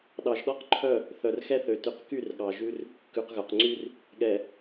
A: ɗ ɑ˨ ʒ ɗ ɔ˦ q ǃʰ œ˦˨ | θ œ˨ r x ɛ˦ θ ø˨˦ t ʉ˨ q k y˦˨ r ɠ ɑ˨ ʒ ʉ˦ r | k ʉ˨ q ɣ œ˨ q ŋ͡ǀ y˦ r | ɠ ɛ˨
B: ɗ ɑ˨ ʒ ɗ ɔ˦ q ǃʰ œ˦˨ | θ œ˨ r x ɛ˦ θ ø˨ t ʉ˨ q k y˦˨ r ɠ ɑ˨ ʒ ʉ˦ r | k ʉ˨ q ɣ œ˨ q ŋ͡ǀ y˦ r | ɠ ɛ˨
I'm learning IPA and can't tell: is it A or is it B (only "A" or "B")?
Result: B